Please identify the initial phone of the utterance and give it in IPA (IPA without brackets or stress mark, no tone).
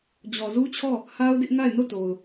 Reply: d͡ʑ